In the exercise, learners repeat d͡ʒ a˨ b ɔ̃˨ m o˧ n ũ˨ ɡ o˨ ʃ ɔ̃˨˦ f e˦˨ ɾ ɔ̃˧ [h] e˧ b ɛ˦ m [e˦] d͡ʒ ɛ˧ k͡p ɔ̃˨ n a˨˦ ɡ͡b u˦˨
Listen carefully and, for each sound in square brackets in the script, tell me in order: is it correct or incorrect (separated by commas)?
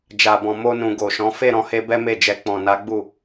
correct, incorrect